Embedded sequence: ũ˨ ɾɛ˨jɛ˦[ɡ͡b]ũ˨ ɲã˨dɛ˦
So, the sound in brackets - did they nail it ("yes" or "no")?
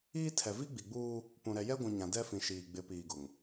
no